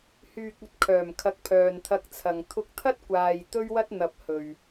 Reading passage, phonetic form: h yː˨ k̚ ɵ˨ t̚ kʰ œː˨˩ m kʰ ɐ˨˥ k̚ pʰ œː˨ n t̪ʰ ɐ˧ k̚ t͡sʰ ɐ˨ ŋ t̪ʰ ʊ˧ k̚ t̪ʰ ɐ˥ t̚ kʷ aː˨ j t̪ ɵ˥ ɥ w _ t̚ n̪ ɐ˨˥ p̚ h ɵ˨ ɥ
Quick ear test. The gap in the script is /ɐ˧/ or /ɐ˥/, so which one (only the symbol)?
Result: ɐ˥